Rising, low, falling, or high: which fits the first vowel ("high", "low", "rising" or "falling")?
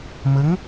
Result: rising